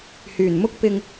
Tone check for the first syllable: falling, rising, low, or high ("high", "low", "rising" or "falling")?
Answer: low